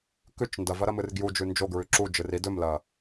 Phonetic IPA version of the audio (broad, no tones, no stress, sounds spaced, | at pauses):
k ʉ t͡ʃ n d ɐ v ɐ ɾ ɐ m ɨ r ɡ j u d͡ʒ ʉ n d͡ʒ o ɡ ɹ ʉ ǁ u d͡ʒ ɨ r i d ɵ m l ɐ